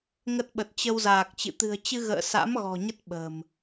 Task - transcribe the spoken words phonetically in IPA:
ŋ ə˦˥ t̚ ɓ ə˨˩ t̚ t͡ɕ ə˧ w z aː˨˩ k̚ t͡ɕ ɨ̰˧˨ t̪ ɨ̤˨˩ ə̯ t͡ɕ ɨ˧ ɣ ə̰ː˧˨ s a̰˧˥ m ɣ ɔ̤˨˩ ɲ ə˦˥ t̚ ɓ ə̤ː˨˩ m

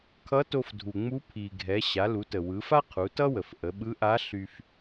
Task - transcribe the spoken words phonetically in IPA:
kʰ ʌ˧˥ t o˧ f dʱ u˩ ŋ͡m u˧˥ pʰ i˩ ɡʱ ɛ˩˧ ɕ a˩˧ l u˩˧ t ə˩ w ɯ˩˧ f a˥ qʰ u˩˧ t ʌ˥ w ə˩ f ʔ ə˩˧ ɓ ɯ˧˥ ʔ a˧˥ ɬ y˧ f

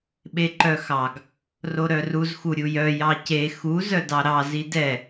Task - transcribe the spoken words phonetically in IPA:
ɓ e ǃ œ x ɑ ɡ | r o ɾ œ r u z x u ɾʲ u j œ j ɑ c e x u z œ d ɑ ɾ ɑ z i d ɛ

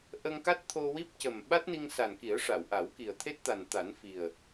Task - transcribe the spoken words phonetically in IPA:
ʔ ə˧ ŋ k a˦˥ t̚ t̪ʰ o˧ w i˦˥ p̚ c ə˨˩ m ɓ a˦˥ t̚ n i˧ ŋ s a˨˩ n k i˨˩˦ ə̯ ʂ a˨˩˨ w ʔ a˨˩˦ w k i˨˩ ə̯ t̪ʰ e˦˥ t̚ t̪ a˨˩ n t̪ a˨˩˦ n f i˨˩ ə̯

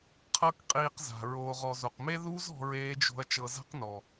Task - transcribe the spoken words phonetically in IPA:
qʰ ɤ˦ k qʼ iː˧ q z a̤˨ ɹ oː˨ ʁ ɔ˨ z o˨ q m e˦ ð u˦ z ɔ̤˦ ɹ eː˦ d͡ʒ o̤˦ ɐ̯ t͡ʃ ɤ˧ z a̤˦ q n ɔ˨

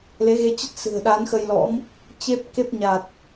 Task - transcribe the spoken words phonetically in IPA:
l e˨˦ ɣ e˧ t͡ɕ ə˦˥ t̚ s ɨ̤˨˩ ə̯ ɗ a˨˦ n x ə˧ j l ɔ̰˧˥ m | t͡ɕ e˦˥ p̚ k e˦˥ p̚ ɲ a˨˩ t̚

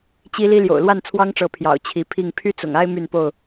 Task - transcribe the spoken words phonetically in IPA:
t͡ɕ i˦ l i˦ l j o̰˨˩ ʊ̯ l w a˥˨ n t͡sʰ w ɑ˦ ŋ ʈ͡ʂ ɤ˨˦ pʰ j ɑ̰˨˩ ʊ̯ t͡ɕʰ i˨˦ pʰ i˥˨ ŋ pʰ y˦ t͡s ʊ̰˨˩ ŋ a˦ ɪ̯ m y˥˨ n p o˥˨ ʊ̯

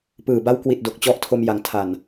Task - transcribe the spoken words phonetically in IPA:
p ɯː˨˩ b a˦˥ w k w i˨˩ t̚ d o˨˩ k̚ t͡ɕ ɔ˦˥ ʔ tʰ o˧ m j a˩˦ ŋ tʰ a˨˩ n

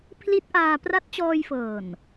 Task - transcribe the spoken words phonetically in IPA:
pʰ l i˦˥ t̚ ʔ aː˧ p r a˦˥ t̚ t͡ɕ ɔː˧ j f ɤː˨˩ n

